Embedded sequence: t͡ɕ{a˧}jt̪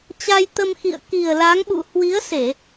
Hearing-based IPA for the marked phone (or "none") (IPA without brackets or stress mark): a˧